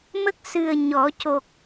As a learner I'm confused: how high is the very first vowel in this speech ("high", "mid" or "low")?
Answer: mid